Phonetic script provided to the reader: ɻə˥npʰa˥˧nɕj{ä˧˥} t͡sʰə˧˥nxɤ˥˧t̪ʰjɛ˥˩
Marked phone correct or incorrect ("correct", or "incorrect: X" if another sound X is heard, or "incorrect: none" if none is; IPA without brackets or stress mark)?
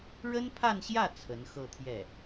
incorrect: ä˥˩